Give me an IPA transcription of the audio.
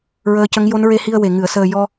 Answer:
ɹ əː˧˥ c ə˧˥ ŋ j o˧˥ n ɹ e˧ h i˧ ə̯ w e˨˩ ŋ ɨ˨˩˨ ə̯ s əː˨˩ j ɔ˧

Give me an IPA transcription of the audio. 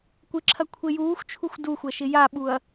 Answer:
kʷ ɪ ǁʰ ɐ kʷʰ e j uː xʷ t͡ʃʰ u xʷ d u xʷ ɐ ʃ ɪ j a ɓ u ɐ̯

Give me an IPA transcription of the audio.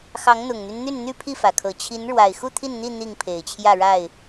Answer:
x ɑ˨˦ ŋ n̪ ʊ˨˩ ŋ n̪ y˦ n n̪ y˥˨ n n̪ y˥˨ pʰ i˥˨ f ä˩ kʰ ɤ˨˩ t͡ɕʰ i˨˦ n ɻ w a˨˩ ɪ̯ x u˥˨ t̪ʰ i˥˨ n n̪ i˥˨ n̪ i˥˨ ŋ pʰ e˨˩ ɪ̯ t͡ɕʰ j ä˥˨ ɻ a˥˨ ɪ̯

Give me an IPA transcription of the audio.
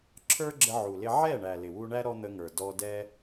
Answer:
ǁʰ ə˞˦ ɡ͡ǁ ə˧ ʕ u˨ l ɪ˧ ʕ ɛ˦˨ ɳ æ˨ l ɪ˨ w u˧ ɳ æ˦ ɾ ɔ˦ n̪ ə˧ ŋ ə˞˨ d ɔ˧ d ɛ˦

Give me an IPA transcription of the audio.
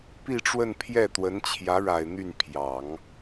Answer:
p i˥˧ ʈ͡ʂ w ə˥˧ n pʰ j ɛ˥˩ t̪ w ə˧˥ n t͡ɕʰ j ä˧˥ ɻ a˨˩ ɪ̯ n̪ y˥˩ n pʰ j ɑ˨˩˦ ŋ

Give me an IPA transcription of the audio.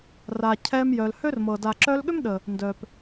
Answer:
r a˨ cʰ ɛ˧ m j œ˨ l h ø˦ r m ɤ˨ d a˨ ǁ œ˧ l ɠ ʏ˦ m ɗ ə˨ | n d œ˨ p

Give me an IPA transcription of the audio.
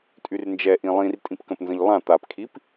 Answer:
tʼ y r n d͡ʒ ɛ ʔ ĩ lˠ ĩ r tʼ ĩ p k ə̃ p n z ə̃ ʎ lˠ ã t̪ a p kʰ i p

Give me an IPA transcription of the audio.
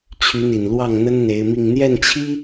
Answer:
t͡ɕʰ y˧˥ n̪ i˨˩ n l w ɑ˥˩ ŋ n̪ ə˥ n n̪ e˧˥ ɪ̯ m i˥˧ ŋ n̪ j ɛ˥˩ n t͡ɕʰ i˥

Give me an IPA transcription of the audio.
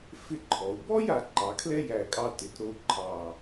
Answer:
f ɪ˥˧ ǃʰ ɔ˩˧ u̯ b ɔ˥ j a˩˧ ǃ ɑ˩˧ kʰ l ɛ˥ j æ˧˩ kʼ ɑ˧ t ɪ˩˧ t ɾ o˧ u̯ ǃʰ ɑ˧˩

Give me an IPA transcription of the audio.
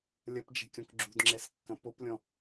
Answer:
lʲ ɐ p d͡ʒ ɛ̤ kʲ ɔ̃ k ɡ͡ǁ ṳ d ŋ͡ǁ ɛ s kː ɐ̃ p o p lʲ ɔ̃

